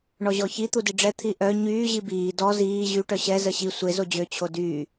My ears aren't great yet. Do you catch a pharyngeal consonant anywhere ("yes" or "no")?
no